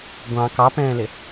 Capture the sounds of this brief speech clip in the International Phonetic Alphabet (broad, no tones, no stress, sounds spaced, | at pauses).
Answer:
ɡʷ ɑ̃ k ɑ p ɛ̃ː l ɪ